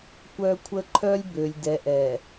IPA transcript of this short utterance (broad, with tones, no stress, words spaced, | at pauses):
kʷœː˦kʷʰə˦ ǃʰœ˦lʲ bø˨lʲdɛ˨ʔɛː˨